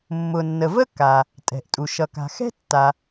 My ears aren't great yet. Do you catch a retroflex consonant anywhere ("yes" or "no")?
no